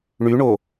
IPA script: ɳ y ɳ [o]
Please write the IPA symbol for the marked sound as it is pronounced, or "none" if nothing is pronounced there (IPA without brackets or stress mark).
o